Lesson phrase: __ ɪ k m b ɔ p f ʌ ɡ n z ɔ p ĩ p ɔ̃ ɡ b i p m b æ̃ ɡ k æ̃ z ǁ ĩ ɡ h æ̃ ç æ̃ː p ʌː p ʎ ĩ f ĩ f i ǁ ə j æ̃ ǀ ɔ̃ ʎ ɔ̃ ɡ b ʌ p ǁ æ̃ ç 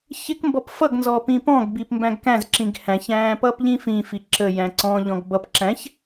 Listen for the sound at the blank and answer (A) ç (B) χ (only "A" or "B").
A